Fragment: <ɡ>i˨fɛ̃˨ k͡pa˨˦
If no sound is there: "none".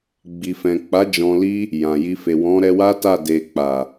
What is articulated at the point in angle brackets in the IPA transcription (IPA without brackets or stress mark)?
ɡ͡b